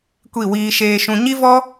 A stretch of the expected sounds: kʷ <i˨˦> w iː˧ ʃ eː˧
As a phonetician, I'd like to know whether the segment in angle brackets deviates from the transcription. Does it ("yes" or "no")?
yes